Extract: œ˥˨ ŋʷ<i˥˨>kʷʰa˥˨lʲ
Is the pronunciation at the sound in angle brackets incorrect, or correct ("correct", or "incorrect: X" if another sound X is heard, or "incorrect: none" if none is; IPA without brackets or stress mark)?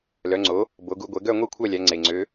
correct